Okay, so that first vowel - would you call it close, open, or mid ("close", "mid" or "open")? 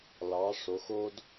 open